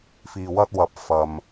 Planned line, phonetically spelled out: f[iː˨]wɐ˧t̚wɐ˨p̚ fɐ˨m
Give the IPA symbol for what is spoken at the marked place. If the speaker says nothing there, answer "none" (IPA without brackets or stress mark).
iː˨